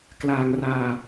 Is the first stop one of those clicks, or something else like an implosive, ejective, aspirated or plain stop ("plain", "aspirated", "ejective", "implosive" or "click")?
plain